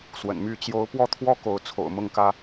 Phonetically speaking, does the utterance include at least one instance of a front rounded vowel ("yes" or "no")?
yes